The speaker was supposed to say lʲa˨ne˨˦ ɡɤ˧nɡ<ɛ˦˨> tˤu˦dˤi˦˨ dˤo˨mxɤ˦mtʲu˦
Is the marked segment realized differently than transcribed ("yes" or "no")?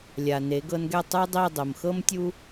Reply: no